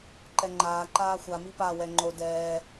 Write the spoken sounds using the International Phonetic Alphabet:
ǃɛŋ͡ǃaː ǃaːxʷa mipa wɛŋ͡ǃo dɛː

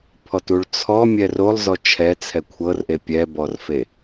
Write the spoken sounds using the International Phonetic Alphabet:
pʰɔtuɭt͡sʰɔ mʲɛrolˠ zɔt͡ʃʰɛ t͡sʰɛkʷʰɤrʔe pʲɛbɔrfe

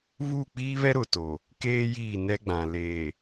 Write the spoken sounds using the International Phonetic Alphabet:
βuː˦˨k͡piː˦βɛ˦ ɾʊ˨to˨ | keː˦ jiː˦˨nɛ˦ɡ͡bã˨ leː˨

